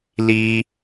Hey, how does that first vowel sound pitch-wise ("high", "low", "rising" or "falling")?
high